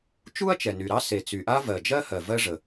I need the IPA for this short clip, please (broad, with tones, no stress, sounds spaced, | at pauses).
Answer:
t͡ʃ u˥ ɐ̯ t͡ʃ ɛ˩ n y˩ ɾ ɑ˥ s e˩ t͡s y˩ ʔ a˥ v ɜ˩ d͡ʒ ɜ˥ h ɜ˩ v ɜ˥ ʐ ə˩